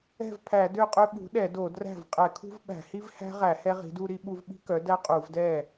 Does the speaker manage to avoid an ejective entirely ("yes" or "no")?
no